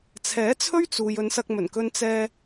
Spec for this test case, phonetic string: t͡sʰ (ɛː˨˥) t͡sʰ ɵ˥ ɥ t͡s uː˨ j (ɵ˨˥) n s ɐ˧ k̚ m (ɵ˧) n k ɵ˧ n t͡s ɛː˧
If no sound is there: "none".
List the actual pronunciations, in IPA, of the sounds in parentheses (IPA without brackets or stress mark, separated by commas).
ɛː˨˥, ɵ˨˧, ɵ˨˩